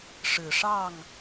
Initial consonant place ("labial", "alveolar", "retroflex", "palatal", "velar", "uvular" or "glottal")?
retroflex